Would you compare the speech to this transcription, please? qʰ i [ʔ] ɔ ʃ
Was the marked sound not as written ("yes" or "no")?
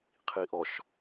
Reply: no